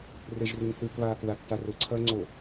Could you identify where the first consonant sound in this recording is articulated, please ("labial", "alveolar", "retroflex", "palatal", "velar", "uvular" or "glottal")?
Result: alveolar